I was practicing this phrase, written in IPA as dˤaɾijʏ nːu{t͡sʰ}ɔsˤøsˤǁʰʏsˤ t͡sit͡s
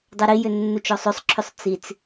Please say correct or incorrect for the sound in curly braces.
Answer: incorrect